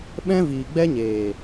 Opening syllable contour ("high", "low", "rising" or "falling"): high